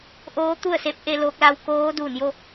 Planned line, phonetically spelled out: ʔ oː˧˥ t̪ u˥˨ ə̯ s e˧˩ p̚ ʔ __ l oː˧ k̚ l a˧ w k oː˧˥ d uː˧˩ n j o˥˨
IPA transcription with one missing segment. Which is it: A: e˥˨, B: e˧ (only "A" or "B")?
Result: A